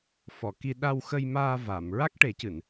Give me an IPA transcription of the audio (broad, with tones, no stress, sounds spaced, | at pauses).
f ɔ˨˩˨ k i˧ ɗ a˧ w x ə˧ j m aː˧ v a˨˩˨ m ɹ a˦˥ k̚ ʈ e˨˩˦ c ɨ˨˩˨ n